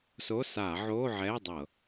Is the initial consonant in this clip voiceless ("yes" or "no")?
yes